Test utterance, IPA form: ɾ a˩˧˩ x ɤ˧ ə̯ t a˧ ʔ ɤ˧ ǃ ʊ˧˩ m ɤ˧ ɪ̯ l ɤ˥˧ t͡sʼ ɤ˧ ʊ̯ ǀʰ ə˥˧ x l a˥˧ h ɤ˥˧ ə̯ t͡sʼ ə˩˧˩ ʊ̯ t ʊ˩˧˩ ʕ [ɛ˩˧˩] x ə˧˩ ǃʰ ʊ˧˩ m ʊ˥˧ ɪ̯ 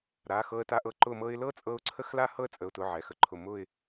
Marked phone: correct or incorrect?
correct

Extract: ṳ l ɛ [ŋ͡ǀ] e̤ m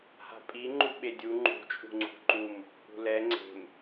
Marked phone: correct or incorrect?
correct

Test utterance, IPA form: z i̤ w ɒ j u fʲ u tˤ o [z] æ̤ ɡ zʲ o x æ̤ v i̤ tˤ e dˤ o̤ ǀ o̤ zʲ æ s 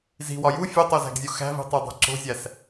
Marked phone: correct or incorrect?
correct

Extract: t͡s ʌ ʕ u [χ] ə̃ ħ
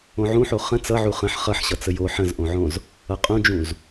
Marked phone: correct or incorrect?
correct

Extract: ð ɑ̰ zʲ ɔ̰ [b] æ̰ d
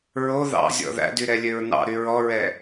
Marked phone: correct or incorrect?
incorrect: ð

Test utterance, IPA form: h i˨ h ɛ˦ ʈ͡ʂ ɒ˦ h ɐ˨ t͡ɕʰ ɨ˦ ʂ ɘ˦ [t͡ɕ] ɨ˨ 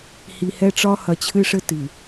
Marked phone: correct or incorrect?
incorrect: t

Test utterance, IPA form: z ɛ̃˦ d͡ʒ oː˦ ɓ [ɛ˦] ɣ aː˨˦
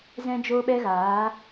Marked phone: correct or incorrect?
correct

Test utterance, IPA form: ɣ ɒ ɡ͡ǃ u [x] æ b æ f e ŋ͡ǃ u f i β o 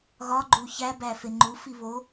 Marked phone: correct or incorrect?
incorrect: ç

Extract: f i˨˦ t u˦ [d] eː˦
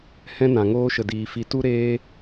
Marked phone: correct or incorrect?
incorrect: ɾ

